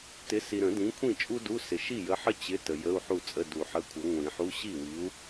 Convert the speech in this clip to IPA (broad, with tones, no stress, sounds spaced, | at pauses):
t ɪ˨˥ s i˨ ɾ ə̃˨˩˦ d ĩ˨˥ kʷʰ ĩ˥˩ t͡ʃʼ u˥ d u˧˥˧ s ɪ˨ ʃ i˥˩ j ə˨˥ ħ ə˥ t͡ɕ ɪ˧˥˧ t ə˨ j ə˧˥˧ u̯ ħ u˥˩ t͡sʼ ə˧˥˧ d u˨˩˦ ħ ə˧˥˧ kʷʰ ə˨˥ ŋʷ ĩ˨˩˦ ħ u˧˥˧ ɕ i˥˩ w i˨˥ u̯